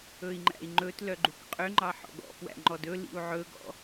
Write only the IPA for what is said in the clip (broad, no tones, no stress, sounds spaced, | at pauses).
ɵ i̯ ŋ͡ǃ æ̰ i̯ ŋ͡ǃ ɵ t l œ ɡ͡ǃ u k qʼ ø ŋ͡ǃ ɑ ħ ɔ̰ ɡ ɔ̰ p w æ̰ ŋ͡ǃ ɔ d ɵ l ḭ u̯ ʕ ɵ ɡ ɔ̰